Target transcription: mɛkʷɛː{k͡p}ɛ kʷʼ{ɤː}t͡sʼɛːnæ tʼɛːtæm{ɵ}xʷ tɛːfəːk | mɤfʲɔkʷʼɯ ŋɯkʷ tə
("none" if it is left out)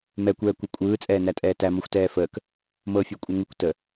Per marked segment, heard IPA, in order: kʷ, ɯː, ɔ

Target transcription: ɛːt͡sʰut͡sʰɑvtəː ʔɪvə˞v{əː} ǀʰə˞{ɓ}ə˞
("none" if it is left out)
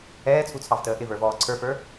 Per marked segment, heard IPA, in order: ɔː, f

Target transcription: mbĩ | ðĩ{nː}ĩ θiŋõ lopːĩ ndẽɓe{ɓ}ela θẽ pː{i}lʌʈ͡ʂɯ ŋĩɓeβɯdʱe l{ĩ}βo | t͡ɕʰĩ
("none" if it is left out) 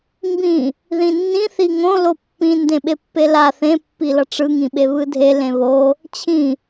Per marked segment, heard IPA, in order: nː, pː, i, ẽ

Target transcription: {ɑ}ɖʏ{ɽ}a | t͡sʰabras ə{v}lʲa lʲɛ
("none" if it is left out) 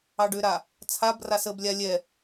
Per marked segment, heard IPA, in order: ɑ, ɾ, b

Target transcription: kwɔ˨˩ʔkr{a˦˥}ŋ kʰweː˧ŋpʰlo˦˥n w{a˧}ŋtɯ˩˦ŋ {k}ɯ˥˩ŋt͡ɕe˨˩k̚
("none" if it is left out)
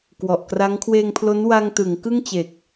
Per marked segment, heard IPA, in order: a˦˥, a˧, k

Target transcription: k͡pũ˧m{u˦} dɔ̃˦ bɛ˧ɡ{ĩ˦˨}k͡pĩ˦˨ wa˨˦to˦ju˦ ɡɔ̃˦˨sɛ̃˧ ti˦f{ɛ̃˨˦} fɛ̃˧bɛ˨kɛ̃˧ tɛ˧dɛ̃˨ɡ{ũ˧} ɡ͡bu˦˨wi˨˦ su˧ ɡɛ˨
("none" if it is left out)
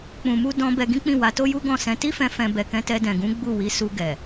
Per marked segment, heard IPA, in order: u˦, ĩ˦, ɛ̃˧, ũ˨˦

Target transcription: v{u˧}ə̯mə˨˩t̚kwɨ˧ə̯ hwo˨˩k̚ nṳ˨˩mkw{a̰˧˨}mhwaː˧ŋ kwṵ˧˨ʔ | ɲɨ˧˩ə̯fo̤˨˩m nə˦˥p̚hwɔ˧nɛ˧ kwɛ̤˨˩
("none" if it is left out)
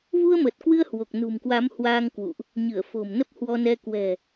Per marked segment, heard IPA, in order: u˧, a˨˦

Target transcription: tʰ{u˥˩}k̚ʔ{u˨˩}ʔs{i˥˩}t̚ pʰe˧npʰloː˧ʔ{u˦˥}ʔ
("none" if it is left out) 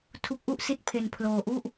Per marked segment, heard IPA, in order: u˦˥, u˥˩, i˥˩, u˥˩

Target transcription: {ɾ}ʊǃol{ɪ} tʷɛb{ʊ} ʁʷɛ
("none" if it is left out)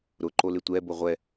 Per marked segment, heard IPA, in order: ɾ, ɪ, ʊ

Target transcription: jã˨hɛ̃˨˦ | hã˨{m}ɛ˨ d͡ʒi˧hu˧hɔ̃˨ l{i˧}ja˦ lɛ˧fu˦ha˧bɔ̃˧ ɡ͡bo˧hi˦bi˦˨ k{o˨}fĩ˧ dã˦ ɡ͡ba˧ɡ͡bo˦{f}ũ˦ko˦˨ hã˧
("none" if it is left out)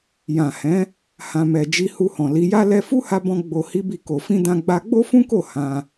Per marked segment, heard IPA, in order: m, i˨˦, o˨, f

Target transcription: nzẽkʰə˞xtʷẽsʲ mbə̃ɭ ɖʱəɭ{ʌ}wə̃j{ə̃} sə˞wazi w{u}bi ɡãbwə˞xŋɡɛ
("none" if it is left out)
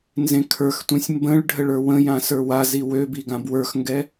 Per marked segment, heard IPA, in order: ə˞, ã, ø

